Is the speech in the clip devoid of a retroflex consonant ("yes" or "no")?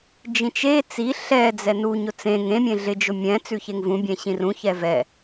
yes